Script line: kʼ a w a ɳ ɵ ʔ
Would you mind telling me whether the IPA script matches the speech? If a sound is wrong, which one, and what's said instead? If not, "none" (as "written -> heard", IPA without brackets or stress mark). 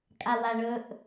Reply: none